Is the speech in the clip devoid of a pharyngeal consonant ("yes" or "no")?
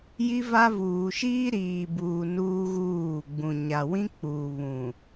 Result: yes